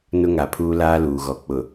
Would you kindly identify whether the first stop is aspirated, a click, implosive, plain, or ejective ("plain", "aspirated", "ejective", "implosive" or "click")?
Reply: aspirated